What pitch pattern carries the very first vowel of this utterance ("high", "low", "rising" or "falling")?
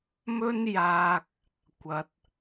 high